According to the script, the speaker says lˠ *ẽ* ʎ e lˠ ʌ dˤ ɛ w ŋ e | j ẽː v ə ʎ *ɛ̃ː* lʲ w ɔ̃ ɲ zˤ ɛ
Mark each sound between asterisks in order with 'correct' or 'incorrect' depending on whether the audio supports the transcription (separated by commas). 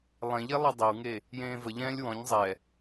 correct, correct